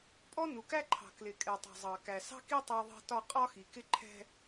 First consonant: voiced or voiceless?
voiceless